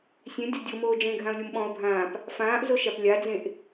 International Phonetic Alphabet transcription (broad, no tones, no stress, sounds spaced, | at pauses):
sʲ ẽ dʲ ɒ dʲ o m oː d͡ʒ ẽ ɡʱ ã ʊ̯ lʲ o m ɓ ɔ̃ ʊ̯ bʱ ãː p | f ãː ʔ z o ʃ a p lʲ a d͡z ẽ ʔ